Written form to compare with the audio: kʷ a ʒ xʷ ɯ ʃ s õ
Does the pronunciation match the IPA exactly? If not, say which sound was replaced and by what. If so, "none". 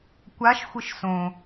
ʒ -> ʃ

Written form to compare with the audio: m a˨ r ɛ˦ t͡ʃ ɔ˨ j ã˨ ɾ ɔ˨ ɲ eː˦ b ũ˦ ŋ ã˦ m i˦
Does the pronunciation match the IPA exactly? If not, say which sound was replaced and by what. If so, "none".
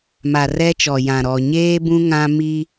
none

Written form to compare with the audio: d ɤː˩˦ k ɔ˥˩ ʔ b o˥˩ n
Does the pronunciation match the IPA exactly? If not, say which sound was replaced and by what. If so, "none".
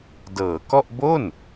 none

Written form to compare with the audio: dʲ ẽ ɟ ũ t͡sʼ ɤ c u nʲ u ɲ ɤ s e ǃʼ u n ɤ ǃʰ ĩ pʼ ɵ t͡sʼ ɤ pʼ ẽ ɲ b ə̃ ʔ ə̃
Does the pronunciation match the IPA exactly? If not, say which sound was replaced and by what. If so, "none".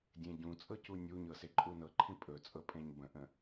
none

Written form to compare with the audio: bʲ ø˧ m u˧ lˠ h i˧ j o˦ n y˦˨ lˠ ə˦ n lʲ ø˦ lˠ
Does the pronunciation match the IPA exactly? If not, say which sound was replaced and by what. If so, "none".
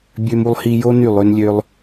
ə˦ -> ø˦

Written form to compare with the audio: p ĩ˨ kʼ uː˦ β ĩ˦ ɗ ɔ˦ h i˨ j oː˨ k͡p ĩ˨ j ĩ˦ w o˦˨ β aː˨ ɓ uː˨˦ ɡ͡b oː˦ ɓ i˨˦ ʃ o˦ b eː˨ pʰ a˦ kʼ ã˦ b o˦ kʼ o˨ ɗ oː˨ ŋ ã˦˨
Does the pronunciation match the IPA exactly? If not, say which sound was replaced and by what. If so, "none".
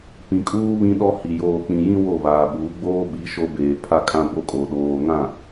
none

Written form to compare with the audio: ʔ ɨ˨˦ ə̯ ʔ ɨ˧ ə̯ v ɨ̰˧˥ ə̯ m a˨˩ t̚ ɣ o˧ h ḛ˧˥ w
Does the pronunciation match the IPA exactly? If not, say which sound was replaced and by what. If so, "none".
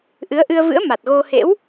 none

